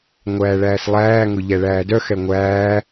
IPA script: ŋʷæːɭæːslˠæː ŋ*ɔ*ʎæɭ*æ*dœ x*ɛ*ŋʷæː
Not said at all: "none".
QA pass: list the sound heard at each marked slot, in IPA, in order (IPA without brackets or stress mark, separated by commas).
o, æː, ɛ